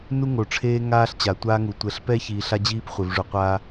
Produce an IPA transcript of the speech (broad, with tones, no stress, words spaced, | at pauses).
nu˦ŋo˨ʈ͡ʂʰeː˦ ŋaː˦ɬt͡ɕa˨tʷaː˦ŋu˨ tʷɛ˨ɬpɛ˦ çiː˨ɬa˦d͡ʑiː˦p χʷe˨vʐu˨qʷaː˦